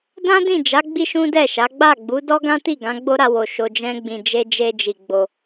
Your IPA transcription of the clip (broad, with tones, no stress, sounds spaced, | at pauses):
d ã˦ d ĩ˦˨ d͡ʒ a˨˦ ɡ͡b i˦ ʃ ũ˦ d ɛ˦˨ ʃ a˨˦ ɡ͡b a˦˨ ɡ͡b u˨˦ d ɔ˦ ɡ ã˦ t i˦˨ ɡ ã˨˦ ɡ͡b o˦ ɾ a˧ w o˨ ʃ o˧ d͡ʒ ɛ̃˦ ɡ͡b ĩ˧ d͡ʒ e˧ d͡ʒ e˧ d͡ʒ i˨ ɡ͡b o˧